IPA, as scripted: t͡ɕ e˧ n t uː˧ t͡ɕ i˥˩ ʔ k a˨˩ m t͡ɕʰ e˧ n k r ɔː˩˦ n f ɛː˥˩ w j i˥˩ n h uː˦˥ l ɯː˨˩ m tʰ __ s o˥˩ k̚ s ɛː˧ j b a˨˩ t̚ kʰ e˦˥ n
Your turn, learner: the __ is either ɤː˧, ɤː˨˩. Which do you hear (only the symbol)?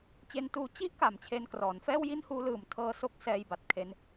ɤː˧